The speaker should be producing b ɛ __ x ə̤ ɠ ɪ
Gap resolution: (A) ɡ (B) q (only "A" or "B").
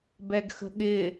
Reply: A